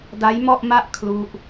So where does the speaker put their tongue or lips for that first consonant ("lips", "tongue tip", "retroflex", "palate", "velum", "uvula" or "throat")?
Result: tongue tip